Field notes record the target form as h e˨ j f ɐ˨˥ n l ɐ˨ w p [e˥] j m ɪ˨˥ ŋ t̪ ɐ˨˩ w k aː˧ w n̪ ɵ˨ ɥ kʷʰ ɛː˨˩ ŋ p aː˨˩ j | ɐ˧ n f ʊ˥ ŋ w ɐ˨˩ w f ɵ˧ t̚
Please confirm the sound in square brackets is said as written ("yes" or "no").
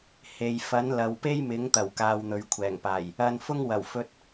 yes